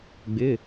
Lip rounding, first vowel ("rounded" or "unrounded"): unrounded